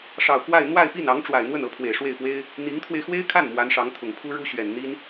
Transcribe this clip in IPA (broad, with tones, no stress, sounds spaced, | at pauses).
ʂ ɑ˨˩ ʊ̯ k w a˥˧ ɪ̯ n̪ w a˥˧ ɪ̯ p i˥˩ n ɑ˧˥ ŋ ʈ͡ʂ w a˨˩ ɪ̯ n̪ w ə˥˩ n ɤ˧˥ pʰ w e˨˩ ɪ̯ ʂ w e˥˩ ɪ̯ p w e˥ ɪ̯ | n̪ i˧˥ ŋ t̪ʰ w e˧ ɪ̯ x w e˥ ɪ̯ kʰ a˥˩ n m w a˧˥ n ʂ ɑ˧˥ ŋ t̪ʰ ʊ˨˩ ŋ pʰ u˥ ɻ u˥ ɕ ɥ ɛ˨˩ n n̪ i˥ n